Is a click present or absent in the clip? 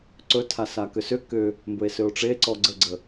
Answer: present